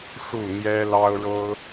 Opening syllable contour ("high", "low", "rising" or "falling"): falling